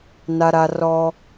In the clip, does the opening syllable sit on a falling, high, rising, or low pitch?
high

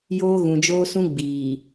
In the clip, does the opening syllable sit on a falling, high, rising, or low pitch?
high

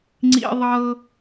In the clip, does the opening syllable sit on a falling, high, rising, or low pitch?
high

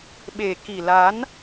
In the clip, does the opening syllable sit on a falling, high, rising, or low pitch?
low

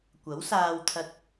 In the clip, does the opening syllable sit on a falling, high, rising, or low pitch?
rising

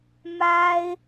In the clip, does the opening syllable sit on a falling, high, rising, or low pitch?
high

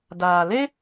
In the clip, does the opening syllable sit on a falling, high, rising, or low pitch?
low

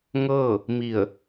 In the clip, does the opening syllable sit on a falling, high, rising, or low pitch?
falling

